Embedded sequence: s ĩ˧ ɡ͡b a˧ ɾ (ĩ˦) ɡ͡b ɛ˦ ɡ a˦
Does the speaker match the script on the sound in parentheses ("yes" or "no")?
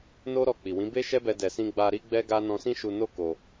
no